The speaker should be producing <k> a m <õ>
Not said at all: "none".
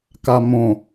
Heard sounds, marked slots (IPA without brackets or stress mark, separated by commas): k, õ